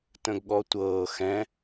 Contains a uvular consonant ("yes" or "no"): no